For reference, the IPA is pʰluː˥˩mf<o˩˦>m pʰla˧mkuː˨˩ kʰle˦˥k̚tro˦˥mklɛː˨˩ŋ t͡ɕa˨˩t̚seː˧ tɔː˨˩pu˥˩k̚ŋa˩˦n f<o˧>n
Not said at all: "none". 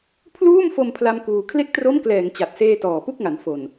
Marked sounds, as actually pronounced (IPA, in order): o˧, o˨˩

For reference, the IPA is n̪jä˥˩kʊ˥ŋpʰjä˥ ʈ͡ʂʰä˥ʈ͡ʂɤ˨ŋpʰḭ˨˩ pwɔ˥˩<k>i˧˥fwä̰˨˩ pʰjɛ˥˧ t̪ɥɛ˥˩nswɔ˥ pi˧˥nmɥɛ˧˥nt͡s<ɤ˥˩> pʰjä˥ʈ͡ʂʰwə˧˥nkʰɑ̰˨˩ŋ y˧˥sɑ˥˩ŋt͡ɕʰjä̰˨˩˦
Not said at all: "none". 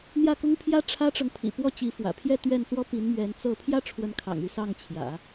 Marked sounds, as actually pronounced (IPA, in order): t͡ɕ, ɤ˥˩

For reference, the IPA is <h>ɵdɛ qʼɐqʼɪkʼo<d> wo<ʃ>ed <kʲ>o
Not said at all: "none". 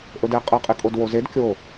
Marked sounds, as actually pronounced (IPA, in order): ʔ, d, z, kʲ

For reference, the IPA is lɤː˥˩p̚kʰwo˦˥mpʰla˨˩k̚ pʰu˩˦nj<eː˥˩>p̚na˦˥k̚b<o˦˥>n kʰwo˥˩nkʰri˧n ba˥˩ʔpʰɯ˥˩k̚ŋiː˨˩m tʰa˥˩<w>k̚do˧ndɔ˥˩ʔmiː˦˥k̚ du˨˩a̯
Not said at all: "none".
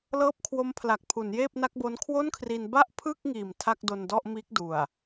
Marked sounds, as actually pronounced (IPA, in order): eː˥˩, o˦˥, none

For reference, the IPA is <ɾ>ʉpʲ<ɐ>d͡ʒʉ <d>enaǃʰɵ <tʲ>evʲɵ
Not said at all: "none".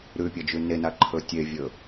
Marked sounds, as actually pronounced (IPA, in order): ɾ, ɐ, n, tʲ

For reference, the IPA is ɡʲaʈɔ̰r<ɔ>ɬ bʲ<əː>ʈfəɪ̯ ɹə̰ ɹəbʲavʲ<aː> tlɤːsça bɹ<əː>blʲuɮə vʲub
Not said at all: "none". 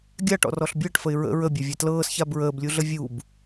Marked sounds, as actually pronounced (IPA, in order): ɔ, əː, a, əː

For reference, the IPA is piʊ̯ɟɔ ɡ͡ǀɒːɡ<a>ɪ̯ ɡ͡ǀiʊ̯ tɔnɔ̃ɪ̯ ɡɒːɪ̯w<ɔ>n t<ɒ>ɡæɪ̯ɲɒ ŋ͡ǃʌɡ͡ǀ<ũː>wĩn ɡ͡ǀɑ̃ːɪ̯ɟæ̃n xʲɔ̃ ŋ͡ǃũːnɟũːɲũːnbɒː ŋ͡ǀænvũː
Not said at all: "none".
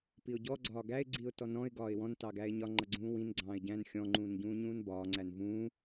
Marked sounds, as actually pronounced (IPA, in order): æ, ɔ̃, ɑ, ũː

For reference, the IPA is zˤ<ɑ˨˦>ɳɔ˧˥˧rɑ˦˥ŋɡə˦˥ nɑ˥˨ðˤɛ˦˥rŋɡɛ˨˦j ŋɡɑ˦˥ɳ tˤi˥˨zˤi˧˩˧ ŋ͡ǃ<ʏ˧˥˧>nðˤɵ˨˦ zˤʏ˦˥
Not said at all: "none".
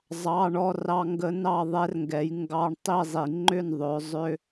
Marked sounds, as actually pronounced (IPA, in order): ɑ˧˥˧, ʏ˥˨

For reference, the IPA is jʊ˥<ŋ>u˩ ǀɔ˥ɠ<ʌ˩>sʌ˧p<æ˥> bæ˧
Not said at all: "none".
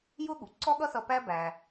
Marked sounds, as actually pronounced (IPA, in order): ɠ, ʌ˥, æ˥

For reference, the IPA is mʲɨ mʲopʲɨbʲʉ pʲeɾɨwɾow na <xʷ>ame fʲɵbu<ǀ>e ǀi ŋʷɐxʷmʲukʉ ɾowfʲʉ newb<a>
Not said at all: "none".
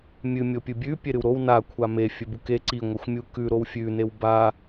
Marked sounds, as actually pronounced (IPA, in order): kʷʰ, k, a

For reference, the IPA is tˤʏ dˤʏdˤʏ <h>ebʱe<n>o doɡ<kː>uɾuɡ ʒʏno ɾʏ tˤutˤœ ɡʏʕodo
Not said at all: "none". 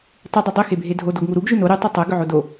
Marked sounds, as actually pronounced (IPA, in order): x, dʱ, ŋ

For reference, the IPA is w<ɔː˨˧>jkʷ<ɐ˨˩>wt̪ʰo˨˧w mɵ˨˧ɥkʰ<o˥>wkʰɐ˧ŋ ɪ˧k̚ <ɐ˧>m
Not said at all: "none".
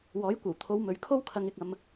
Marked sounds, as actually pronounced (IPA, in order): ɔː˨˥, ɐ˨˩, o˥, ɐ˧

